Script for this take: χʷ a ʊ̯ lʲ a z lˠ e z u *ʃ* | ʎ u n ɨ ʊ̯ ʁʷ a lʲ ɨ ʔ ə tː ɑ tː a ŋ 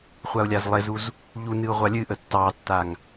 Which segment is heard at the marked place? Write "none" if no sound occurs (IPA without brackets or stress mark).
z